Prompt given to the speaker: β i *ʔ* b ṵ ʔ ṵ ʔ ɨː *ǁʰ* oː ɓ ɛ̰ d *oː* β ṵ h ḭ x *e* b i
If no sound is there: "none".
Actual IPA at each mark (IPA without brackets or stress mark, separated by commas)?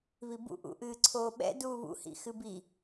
none, ǀʰ, uː, ɨ